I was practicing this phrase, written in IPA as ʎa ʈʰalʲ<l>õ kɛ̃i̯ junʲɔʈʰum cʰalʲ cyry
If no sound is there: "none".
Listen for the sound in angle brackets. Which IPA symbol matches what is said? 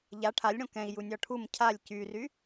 ɽ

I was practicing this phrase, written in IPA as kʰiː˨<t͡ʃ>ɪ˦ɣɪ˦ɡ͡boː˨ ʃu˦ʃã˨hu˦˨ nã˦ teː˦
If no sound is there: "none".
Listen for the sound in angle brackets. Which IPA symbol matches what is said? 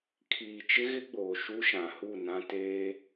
t͡ʃ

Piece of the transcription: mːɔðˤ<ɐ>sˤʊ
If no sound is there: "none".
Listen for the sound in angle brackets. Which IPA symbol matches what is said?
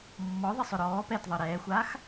ə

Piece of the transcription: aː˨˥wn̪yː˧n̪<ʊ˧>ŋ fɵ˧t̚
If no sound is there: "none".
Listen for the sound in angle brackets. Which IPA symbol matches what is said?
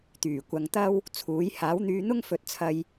ʊ˥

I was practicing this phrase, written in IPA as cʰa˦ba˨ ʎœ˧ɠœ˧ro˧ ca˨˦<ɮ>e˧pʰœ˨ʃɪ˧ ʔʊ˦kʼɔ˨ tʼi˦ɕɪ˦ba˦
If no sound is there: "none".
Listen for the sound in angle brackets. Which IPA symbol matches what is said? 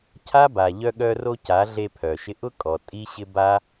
ɮ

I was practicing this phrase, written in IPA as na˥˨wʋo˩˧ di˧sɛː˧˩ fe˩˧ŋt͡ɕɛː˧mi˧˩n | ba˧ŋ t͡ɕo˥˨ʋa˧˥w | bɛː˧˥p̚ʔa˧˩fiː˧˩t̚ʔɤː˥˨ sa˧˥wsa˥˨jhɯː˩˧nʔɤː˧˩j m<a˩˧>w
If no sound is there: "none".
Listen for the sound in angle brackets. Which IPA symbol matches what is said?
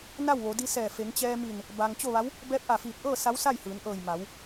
a˩˧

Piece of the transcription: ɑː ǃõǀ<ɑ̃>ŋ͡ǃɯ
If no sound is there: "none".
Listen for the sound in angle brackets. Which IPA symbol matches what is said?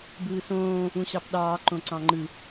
ɑ̃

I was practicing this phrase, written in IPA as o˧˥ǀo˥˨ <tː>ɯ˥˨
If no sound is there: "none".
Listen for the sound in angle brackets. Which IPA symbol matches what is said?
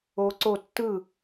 tː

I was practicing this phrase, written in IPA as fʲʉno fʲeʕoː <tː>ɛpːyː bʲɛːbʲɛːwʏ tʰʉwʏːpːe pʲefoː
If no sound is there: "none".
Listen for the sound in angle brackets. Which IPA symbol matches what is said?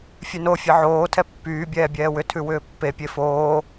tʰ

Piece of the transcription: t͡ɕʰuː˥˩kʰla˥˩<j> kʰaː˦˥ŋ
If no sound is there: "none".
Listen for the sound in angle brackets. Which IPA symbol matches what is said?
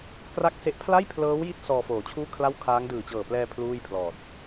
w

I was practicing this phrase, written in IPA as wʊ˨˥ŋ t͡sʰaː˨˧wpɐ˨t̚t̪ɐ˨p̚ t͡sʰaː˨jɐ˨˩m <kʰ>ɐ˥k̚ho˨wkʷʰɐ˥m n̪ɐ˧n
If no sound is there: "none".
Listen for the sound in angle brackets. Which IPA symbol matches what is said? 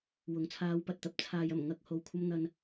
ŋ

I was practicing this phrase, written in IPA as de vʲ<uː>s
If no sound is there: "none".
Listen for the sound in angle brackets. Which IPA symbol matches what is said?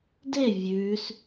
ʉː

